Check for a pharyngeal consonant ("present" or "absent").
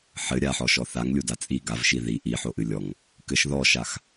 present